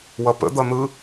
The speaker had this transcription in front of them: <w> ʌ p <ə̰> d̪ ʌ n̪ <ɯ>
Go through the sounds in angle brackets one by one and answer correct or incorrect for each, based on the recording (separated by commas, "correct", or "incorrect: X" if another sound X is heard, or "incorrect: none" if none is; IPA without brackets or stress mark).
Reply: correct, correct, correct